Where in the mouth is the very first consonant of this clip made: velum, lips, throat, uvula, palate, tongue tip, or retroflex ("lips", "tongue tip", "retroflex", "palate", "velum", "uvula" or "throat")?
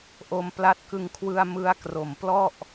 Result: throat